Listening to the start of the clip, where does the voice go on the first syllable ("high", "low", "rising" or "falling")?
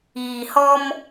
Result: low